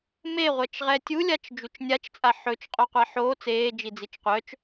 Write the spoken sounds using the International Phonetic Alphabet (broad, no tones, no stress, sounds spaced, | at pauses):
m e ʁʷ ɛ t͡ʃ ʁ ɛ tʲ u lʲ a t͡ʃ d͡ʒ u t͡ʃ nʲ a t͡ʃ t͡sʼ a ħ ɵ t͡ʃ qʼ o qʷ a ħ oː t͡s eː d͡ʒ i d͡z i t͡ʃ qʷ œ t͡ʃ